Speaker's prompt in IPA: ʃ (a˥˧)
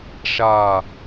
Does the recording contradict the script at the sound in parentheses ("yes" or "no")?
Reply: no